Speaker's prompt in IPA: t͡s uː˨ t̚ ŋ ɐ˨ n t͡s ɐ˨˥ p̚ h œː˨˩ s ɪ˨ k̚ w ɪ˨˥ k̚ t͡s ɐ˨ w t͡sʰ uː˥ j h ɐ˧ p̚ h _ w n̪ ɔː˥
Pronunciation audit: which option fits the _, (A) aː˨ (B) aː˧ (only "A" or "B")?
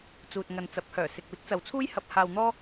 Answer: B